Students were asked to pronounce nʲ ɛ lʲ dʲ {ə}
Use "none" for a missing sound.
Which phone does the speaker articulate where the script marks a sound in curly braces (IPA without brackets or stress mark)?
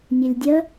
ə